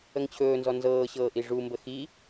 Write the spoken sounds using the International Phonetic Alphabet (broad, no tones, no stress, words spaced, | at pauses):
əŋt͡ɕʰɵːnzɔ nzɤːɕɤː ʔiʐumbə xi